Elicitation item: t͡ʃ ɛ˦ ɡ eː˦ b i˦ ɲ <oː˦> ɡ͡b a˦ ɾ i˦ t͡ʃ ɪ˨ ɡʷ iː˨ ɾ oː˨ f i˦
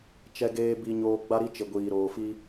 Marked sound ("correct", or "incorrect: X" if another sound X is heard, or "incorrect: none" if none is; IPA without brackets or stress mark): correct